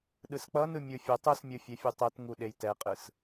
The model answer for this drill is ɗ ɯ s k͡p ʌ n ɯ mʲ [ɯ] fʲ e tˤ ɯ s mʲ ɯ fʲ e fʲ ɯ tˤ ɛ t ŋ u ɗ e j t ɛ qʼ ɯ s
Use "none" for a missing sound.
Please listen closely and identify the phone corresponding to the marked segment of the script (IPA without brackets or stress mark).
ɯ